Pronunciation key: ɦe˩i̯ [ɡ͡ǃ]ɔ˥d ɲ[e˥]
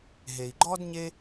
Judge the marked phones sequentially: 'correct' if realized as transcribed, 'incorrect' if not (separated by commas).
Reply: correct, correct